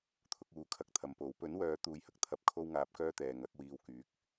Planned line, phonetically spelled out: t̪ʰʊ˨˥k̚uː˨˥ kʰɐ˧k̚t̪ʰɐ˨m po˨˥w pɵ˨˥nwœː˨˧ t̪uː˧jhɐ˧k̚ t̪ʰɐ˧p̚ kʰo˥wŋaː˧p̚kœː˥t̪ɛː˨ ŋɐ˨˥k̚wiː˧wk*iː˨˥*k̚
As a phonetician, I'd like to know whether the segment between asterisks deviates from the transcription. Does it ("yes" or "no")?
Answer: yes